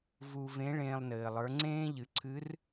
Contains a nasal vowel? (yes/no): yes